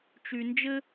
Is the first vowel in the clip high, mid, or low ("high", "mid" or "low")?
high